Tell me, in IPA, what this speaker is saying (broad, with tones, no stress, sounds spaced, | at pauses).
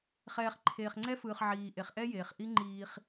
χ ɛː˨ χ ǃʰ eː˨ χ ŋ͡ǀ ɛ˦ f ɯː˨ χ ʕ iː˨ ʔ e˨ χ ʔ ɛ˦ j eː˨ χ ʔ i˦ ŋ͡ǃ iː˦ χ